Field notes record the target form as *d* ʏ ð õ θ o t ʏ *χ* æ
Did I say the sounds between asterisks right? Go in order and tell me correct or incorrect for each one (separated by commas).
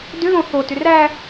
correct, incorrect